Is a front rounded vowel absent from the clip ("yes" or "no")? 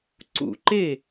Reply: yes